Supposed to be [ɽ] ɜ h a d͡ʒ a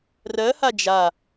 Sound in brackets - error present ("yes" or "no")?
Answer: yes